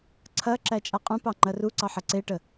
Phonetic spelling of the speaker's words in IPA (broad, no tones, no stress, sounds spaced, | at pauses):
ǀʰ ɐ ǁ æ t͡ʃʼ a qʼ ũ p ɑ ŋ͡ǃ ɐ r u ǀ ɑ ħ ɐ ǀ e ʈ ə